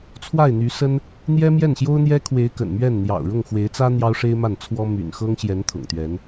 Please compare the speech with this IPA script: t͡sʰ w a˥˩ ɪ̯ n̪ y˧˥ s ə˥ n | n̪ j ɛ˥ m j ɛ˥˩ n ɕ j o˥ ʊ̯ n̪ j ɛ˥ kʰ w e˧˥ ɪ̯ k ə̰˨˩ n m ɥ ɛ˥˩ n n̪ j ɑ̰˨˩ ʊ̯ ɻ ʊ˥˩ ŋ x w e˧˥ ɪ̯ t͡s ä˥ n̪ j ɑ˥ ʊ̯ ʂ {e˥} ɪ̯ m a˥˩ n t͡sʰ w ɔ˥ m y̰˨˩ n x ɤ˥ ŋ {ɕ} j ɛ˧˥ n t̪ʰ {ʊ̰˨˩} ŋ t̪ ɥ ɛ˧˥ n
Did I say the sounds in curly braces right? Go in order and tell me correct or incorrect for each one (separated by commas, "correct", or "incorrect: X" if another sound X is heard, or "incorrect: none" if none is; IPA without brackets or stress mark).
correct, correct, correct